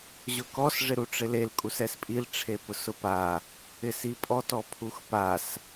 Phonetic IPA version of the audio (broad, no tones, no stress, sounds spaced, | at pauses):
ʑ ʊ k ɔ s ʐ ɪ ɾ u ʈ͡ʂ ɪ l e l kʼ u s ɛ s pʼ i l ʈ͡ʂʰ e p ʊ s ʊ p a | ɪ s i pʼ ɔ t ɔ pʰ u x p a s